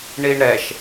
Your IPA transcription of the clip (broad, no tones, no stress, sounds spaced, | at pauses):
ɳ i ɳ ɾ ɛ ʃ